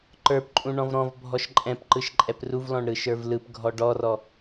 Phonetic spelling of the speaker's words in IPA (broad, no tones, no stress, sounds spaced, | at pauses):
ǃ ə˞ p ǃʼ ũ ɳ ɔ̃ v ɾ ɔ̃ v bʱ ɔ ʃ ǃʼ ɛ̃ p ǃ ɯ ʃ ǃʼ ɛ p r u v l ɔ̃ ɳ ɾ ɯ ʃ ə˞ v l ɯ p ɡʱ ɔ ɖ ɔ r ɔ